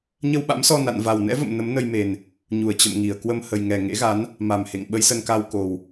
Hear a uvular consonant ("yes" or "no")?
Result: no